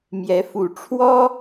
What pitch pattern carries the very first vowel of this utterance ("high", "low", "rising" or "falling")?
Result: rising